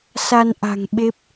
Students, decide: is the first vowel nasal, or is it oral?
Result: oral